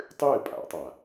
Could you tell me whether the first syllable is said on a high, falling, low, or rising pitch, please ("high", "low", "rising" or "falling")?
falling